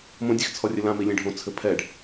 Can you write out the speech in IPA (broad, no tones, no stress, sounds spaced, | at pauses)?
m õ dʲ e x t͡sʰ ɔ rʲ ɨ l ã m i lʲ ẽ ɖʱ õ t͡sʰ ɘ pʰ ɛ ɖ